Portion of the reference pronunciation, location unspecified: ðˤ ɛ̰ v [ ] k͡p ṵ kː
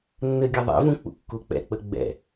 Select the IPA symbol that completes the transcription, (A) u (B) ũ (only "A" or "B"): B